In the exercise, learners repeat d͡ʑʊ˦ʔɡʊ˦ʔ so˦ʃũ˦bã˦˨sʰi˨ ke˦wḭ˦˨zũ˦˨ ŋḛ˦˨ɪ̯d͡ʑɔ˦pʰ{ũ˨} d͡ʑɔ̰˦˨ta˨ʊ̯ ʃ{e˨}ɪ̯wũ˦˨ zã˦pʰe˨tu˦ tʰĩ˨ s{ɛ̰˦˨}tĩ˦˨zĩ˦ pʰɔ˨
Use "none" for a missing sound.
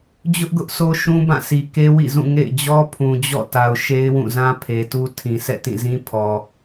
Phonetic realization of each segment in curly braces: ũ˨, e˦, ɛ̰˦˨

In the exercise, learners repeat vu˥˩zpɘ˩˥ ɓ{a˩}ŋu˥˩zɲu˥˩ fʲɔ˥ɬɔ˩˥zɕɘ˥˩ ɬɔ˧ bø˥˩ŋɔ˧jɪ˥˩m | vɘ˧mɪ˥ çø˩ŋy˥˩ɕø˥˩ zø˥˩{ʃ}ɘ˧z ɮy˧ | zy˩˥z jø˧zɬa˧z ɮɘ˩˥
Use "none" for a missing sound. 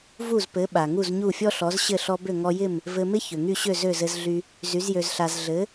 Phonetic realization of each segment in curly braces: a˩, z

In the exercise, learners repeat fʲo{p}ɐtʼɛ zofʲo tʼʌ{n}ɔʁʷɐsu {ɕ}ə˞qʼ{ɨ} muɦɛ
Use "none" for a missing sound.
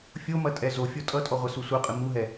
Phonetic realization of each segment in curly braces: m, tʼ, sʷ, ɨ

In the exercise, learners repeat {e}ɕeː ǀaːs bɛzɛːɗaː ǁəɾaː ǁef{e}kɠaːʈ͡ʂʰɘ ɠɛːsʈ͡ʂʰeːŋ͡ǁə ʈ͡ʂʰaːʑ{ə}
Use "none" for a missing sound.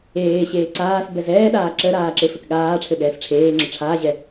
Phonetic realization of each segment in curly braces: eː, ɘ, ɛ

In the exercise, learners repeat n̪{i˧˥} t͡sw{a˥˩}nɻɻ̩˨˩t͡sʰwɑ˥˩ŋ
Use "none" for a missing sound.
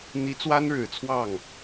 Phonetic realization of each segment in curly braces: i˧˥, a˥

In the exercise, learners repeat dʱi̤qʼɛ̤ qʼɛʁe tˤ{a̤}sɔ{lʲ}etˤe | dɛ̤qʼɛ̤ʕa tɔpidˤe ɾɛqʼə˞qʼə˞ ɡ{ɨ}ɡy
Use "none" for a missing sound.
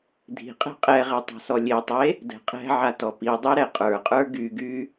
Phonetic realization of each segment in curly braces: a̤, lʲ, y

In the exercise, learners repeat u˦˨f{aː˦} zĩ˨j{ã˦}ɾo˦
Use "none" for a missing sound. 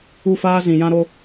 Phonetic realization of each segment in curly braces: aː˦, ã˦

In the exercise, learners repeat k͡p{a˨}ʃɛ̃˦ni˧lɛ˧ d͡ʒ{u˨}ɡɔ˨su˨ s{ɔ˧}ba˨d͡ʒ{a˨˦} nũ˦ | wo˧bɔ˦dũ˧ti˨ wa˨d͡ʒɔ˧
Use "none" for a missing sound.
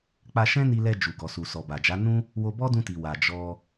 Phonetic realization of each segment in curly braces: a˧, u˨, ɔ˨, a˨˦

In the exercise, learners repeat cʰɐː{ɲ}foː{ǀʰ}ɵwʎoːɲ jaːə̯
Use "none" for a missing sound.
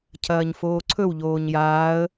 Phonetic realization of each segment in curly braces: ɲ, ǀʰ

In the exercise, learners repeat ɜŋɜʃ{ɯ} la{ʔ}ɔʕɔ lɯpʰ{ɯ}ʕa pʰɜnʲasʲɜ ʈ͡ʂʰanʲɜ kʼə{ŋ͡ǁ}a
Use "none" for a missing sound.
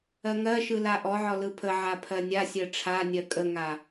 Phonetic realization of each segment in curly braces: ɯ, ʔ, ə, ŋ

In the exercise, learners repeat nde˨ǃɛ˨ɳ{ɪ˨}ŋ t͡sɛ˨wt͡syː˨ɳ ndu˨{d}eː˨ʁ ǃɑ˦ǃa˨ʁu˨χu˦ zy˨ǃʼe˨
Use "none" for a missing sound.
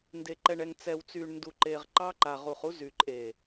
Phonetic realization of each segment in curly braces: ɛ˨, ǃ

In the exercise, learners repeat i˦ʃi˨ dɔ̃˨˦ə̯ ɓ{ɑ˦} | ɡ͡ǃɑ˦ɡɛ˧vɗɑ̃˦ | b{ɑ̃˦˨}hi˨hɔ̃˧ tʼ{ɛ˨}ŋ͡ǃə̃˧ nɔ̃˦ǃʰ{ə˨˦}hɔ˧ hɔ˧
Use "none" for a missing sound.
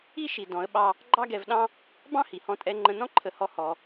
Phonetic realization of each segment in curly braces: ɑ˦, ɑ̃˦, ɛ˧, ə˨˦

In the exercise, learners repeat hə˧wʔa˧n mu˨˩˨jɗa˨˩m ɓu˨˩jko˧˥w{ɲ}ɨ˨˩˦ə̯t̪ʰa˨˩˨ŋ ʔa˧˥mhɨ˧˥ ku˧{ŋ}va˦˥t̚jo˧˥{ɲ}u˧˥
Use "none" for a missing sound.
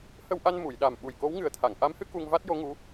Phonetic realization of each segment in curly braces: ŋ, ŋ, ŋ

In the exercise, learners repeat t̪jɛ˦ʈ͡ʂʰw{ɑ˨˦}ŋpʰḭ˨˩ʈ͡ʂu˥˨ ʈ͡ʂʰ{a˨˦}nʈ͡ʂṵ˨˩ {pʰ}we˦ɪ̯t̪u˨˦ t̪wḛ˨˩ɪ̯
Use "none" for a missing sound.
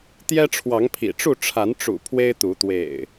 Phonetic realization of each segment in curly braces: ɑ˨˦, a˨˦, pʰ

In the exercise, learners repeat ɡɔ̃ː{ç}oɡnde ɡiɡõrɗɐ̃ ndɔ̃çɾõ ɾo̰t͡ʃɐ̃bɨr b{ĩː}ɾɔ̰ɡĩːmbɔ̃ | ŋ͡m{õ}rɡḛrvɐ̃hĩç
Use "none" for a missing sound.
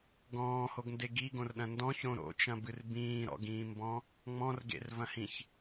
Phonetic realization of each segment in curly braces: h, ĩː, ɔ̃

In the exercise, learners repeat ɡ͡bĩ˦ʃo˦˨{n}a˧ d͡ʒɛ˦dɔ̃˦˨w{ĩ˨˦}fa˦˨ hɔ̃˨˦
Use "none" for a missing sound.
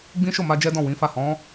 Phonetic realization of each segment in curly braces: m, ĩ˨˦

